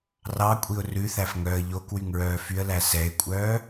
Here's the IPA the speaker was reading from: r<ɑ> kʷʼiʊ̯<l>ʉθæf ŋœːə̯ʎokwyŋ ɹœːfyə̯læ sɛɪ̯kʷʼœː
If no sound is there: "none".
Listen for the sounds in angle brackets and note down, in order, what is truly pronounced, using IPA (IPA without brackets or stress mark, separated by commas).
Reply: ɑ, r